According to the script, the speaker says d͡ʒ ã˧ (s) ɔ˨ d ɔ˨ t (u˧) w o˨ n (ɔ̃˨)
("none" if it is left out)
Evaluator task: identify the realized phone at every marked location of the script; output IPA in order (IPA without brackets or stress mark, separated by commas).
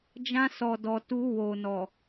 s, u˧, ɔ˨